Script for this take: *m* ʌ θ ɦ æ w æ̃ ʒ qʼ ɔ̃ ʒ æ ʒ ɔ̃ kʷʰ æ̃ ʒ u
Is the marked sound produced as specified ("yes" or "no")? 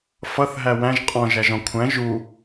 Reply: no